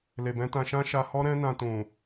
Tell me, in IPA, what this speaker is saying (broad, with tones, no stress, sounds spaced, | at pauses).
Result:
l e˨ b ɛ̃˨˦ t ã˧ ʃ ã˦ ʃ a˧ h ɔ˦ ɾ ɛ̃˦ n ã˧ t ũ˨